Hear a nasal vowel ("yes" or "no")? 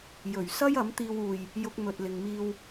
no